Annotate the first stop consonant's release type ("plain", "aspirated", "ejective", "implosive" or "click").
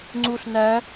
click